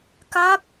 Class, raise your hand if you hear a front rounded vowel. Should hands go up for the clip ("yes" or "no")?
no